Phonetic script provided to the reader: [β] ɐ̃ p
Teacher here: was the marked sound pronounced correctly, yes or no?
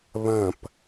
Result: yes